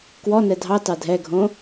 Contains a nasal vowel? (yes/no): yes